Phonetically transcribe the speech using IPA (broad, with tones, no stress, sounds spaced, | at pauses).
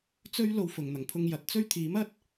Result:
t͡s ɵ˥ ɥ l o˧ w f ʊ˨˩ ŋ n̪ ɐ˨˩ ŋ pʰ ʊ˧ ŋ j ɐ˨˥ t̚ t͡s ɵ˥ ɥ t̪ʰ iː˨˥ m ɐ˥ t̚